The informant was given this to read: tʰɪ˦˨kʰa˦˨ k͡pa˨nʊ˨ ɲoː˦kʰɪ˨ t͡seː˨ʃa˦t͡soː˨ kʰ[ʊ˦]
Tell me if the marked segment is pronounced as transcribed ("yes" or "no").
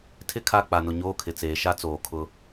yes